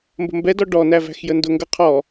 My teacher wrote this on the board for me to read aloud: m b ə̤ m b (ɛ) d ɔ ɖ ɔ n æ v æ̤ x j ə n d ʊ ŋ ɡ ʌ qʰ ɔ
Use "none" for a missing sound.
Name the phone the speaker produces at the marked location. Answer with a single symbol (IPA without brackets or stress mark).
ɛ